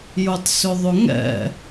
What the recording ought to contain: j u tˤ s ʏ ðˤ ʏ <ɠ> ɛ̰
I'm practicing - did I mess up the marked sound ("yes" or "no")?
yes